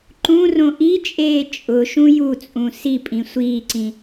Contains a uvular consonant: no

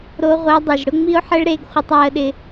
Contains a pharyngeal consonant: yes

